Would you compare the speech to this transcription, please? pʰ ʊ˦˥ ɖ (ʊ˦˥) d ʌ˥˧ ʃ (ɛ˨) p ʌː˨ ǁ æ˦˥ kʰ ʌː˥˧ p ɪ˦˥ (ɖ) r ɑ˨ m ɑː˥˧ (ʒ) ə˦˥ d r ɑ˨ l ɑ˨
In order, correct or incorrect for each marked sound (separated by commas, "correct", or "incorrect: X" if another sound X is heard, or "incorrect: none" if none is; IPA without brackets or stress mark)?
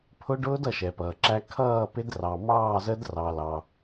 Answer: incorrect: ʊː˦˥, correct, incorrect: d, incorrect: z